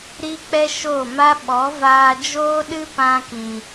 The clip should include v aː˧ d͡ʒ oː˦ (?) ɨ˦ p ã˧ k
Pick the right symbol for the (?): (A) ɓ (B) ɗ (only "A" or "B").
B